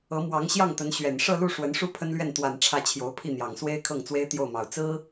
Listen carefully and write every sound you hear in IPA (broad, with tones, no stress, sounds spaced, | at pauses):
ɤ˧˥ m w ɑ˧˥ ŋ ɕ j ɑ˥˩ ŋ t̪ ə˧˥ n ɕ ɥ ɛ˨˩ n ʂ ɤ˥˧ l u˥˩ ʂ w ə˧˥ n ʂ u˥ pʰ ə˥ n l ɥ ɛ˥˩ n t̪ w a˨˩ n ʈ͡ʂʰ ä˥˩ t͡ɕʰ j o˧˥ ʊ̯ pʰ i˥˩ n̪ j ɑ˨˩ ŋ s w e˥ ɪ̯ kʰ ɤ˥˩ ŋ t͡s w e˥ ɪ̯ t̪ j o˥˩ ʊ̯ m ɑ˨˩ ʊ̯ t͡s ɹ̩˥